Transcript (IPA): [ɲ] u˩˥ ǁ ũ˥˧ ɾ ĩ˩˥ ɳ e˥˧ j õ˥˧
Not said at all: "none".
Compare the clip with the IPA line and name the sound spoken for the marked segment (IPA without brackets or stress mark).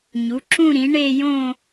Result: ɲ